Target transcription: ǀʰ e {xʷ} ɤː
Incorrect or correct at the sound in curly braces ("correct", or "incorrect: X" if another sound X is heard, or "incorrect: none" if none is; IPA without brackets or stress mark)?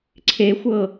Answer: correct